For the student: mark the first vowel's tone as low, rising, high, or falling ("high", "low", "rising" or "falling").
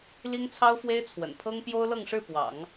high